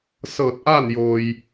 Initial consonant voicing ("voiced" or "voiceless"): voiceless